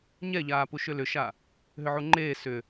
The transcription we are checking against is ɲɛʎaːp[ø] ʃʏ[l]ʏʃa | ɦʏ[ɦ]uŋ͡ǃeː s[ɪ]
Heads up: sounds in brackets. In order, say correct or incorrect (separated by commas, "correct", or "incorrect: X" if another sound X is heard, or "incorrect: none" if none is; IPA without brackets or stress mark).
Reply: incorrect: u, correct, incorrect: ʕ, incorrect: ʏ